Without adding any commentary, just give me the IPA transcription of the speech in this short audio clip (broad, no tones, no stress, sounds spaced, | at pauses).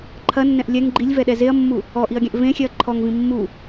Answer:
ǃʰ ɐ nː ɛ̃ ʔ lʲ ɛ ŋ ɡ͡ǃ i lʲ v ɛ ɗ ɛ z e ɐ̯ mː u | ɔ ʔ i ɐ̯ ɡʲ ɛ̃ ʔ v ẽ xʲ ɛ ɐ̯ ǃʰ ɔ ŋ v ĩ mː u